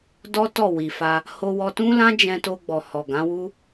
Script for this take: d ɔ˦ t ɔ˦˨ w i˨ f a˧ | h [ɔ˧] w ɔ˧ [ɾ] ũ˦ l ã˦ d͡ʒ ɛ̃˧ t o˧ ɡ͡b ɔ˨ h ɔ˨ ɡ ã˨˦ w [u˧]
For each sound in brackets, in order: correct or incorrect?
incorrect: o˧, incorrect: t, incorrect: u˦

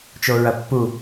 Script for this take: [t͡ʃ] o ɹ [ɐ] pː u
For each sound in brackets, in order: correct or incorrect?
correct, correct

